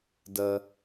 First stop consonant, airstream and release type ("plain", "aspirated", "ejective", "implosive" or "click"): plain